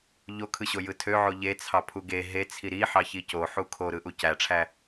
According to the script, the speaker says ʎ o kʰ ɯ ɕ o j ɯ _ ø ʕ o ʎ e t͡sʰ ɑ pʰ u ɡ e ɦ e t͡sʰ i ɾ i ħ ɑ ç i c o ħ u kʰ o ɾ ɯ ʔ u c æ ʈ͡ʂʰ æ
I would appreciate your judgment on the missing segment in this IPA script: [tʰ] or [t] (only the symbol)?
tʰ